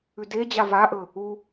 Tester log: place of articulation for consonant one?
alveolar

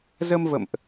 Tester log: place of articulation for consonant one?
alveolar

